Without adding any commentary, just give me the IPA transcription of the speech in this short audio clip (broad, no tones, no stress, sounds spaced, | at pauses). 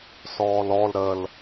s ɔː l ɔ l ɾ ə l